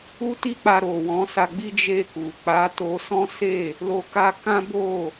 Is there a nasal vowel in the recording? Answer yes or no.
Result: yes